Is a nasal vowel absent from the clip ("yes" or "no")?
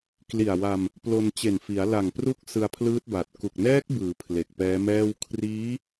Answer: yes